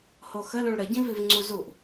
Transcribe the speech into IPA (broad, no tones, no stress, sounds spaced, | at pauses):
h o x ə l ũ ɭ ɾ ə ɟ ĩ v i v ŋ͡ǀ u z u ʔ